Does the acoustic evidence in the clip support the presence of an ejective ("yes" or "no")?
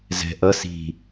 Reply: no